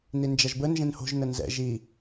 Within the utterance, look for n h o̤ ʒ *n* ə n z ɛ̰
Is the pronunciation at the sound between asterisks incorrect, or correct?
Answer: correct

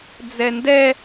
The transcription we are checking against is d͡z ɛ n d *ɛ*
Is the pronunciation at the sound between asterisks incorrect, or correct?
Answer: correct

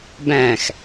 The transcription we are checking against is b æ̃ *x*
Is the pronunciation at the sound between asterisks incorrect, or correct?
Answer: correct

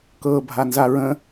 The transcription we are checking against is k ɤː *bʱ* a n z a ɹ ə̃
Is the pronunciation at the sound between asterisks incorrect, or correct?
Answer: correct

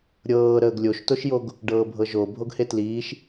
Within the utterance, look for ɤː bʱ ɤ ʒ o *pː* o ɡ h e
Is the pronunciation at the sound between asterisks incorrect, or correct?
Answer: incorrect: bʱ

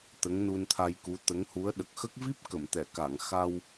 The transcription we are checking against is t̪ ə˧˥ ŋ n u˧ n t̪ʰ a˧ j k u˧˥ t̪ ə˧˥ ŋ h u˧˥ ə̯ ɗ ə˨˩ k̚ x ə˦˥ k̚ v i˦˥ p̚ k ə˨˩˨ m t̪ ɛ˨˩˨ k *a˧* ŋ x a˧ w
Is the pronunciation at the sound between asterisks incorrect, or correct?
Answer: incorrect: a˨˩˨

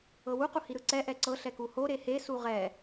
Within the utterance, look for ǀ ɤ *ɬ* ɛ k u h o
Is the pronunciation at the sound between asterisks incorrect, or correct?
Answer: correct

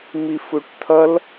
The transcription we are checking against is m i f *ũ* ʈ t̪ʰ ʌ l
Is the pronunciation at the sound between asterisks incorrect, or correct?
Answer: incorrect: u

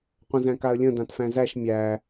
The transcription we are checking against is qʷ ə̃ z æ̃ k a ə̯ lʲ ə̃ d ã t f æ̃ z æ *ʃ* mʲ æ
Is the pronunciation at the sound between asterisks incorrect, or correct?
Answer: correct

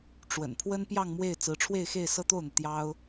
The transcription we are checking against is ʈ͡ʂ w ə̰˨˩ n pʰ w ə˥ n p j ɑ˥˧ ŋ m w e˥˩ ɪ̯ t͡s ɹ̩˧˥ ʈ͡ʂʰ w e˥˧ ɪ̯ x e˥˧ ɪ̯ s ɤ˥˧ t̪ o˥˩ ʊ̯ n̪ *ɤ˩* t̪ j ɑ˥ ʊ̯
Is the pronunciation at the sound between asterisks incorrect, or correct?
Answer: correct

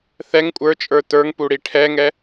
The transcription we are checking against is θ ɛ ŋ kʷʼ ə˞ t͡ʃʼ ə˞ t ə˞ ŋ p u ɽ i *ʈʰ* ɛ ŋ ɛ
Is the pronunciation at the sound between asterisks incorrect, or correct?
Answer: correct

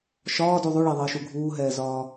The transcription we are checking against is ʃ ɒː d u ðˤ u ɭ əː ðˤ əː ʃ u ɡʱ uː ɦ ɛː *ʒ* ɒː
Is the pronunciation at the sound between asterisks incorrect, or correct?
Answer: incorrect: z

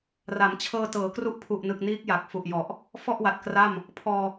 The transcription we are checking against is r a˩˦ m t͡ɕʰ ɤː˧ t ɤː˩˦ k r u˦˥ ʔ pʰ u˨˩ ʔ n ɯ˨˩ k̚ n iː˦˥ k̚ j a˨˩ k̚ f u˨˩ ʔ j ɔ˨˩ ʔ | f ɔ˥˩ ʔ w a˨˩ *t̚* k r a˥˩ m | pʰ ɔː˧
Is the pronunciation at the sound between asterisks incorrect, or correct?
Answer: correct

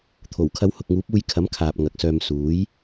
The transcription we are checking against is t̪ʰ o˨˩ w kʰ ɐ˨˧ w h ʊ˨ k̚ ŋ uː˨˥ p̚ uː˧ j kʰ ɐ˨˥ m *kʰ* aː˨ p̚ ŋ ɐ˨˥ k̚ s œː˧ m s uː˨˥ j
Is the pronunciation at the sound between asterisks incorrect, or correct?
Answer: correct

